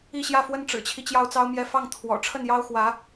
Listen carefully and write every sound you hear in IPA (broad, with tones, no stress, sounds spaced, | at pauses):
i˥˧ ɕ j ä˥˩ f w ə˥ n ʈ͡ʂ ɻ̩˨˩ t͡ɕʰ i˦ t͡ɕ j ɑ˥˩ ʊ̯ t͡s ɑ˥ ʊ̯ m j ɛ˥˧ f ɑ˥˩ ŋ t̪ʰ w ɔ̰˨˩ ʈ͡ʂʰ ə˥˩ n j ɑ˥ ʊ̯ x w ä˧˥